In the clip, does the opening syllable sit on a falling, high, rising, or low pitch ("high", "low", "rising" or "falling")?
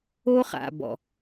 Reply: high